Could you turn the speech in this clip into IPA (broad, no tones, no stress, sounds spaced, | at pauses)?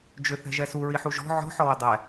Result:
d͡ʒ ʏ θ ɛ̤ ʒ ɛ s u ɹ i ħ u ʒ ɔ̤ ʕ ɔ̤ ħ ɔ w ʏ dˤ ɛ